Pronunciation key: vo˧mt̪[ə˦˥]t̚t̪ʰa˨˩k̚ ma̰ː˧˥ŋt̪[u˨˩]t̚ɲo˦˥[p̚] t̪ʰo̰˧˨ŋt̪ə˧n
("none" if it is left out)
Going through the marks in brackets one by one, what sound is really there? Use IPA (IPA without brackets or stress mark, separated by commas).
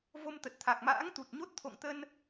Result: ə˨˩, u˨˩, t̚